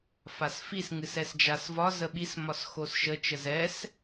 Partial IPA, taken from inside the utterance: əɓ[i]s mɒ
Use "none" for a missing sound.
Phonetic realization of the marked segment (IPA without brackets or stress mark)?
i